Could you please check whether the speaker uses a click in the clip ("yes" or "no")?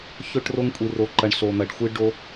yes